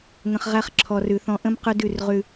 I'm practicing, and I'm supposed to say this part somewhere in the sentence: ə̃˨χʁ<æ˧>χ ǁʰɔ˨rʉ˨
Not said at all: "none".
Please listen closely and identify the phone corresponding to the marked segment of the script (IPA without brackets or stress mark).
æ˧